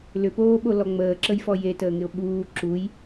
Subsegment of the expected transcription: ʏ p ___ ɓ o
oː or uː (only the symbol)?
oː